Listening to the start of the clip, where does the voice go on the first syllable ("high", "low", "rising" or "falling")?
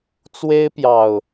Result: high